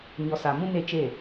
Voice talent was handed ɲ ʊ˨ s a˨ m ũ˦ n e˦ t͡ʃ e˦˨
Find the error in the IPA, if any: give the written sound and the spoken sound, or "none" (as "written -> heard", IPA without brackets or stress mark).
ʊ˨ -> ɔ˨